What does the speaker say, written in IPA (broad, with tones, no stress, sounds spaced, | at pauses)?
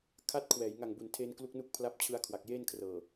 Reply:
kʰ a˦˥ t̚ kʰ w ɛː˩˦ j ŋ a˨˩ ŋ b u˨˩ n tʰ eː˧ n k l u˦˥ k̚ n u˦˥ k̚ pʰ l a˦˥ p̚ t͡ɕʰ ɯ˧ a̯ kʰ w a˨˩ k̚ j eː˥˩ n kʰ r ɤː˨˩